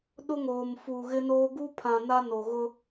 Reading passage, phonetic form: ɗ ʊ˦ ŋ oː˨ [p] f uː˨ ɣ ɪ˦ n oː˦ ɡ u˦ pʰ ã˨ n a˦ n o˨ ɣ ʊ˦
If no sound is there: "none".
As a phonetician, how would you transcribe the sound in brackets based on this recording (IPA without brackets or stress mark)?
m